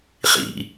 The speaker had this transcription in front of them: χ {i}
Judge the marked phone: incorrect: ḭ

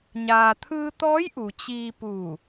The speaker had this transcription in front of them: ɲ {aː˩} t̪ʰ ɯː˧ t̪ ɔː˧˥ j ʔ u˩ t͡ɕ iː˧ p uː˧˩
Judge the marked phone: correct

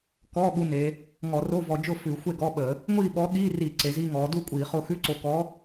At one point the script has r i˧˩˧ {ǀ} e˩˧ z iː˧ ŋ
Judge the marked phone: correct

